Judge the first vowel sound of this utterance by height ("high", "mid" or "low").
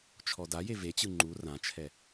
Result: mid